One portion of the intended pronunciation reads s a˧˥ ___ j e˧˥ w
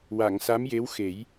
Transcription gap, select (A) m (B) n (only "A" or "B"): A